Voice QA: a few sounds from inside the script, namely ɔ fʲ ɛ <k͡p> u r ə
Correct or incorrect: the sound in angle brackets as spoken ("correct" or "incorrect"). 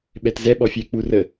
correct